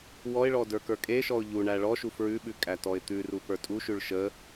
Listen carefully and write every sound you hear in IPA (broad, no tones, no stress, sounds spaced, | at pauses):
w ɔ ɪ̯ ɭ ɔ d ə˞ k ə˞ kʼ e ʃ ɔ ʊ̯ ʎ u ɳ æ ɭ ɔ ʃ u f ɹ ʉ ɓ ʉ kʼ æ t ɔ ɪ̯ t̪ ʉ r u p ə˞ tʼ u ʃ ʉ ɭ ʃ ə